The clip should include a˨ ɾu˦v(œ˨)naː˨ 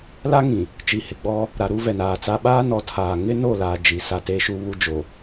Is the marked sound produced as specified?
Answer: no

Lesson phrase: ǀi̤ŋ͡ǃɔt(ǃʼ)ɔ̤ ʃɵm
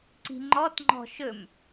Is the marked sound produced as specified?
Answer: no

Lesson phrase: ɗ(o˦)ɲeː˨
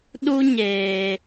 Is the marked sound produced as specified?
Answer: no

